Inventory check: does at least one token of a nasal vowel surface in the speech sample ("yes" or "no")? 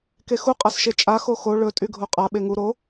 no